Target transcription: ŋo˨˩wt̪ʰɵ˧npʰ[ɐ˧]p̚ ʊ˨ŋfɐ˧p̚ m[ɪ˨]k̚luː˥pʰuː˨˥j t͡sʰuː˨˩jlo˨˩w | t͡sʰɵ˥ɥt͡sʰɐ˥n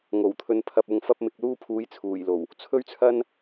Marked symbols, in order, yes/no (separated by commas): yes, yes